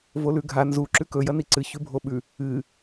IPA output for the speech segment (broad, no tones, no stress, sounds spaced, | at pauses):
v o l ʉ ɡʱ a n z u ǁ ʉ k ɵ j ɐ n i ǀ ɨ ç ʉ bʱ o ɓ ʉ | ɨ